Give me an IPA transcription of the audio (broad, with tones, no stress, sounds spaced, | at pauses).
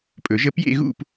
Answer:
pʼ ɵ˨˩˦ ʒ ə˥˧ p j ḛ˥˧ ɣ ṵ˥˧ p